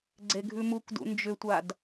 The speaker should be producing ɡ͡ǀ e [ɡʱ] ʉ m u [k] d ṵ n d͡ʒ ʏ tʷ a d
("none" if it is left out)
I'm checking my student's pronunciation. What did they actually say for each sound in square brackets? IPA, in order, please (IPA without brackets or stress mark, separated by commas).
ɡʱ, k